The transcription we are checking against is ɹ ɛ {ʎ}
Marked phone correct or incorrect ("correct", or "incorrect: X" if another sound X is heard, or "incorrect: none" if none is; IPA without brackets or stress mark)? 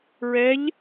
correct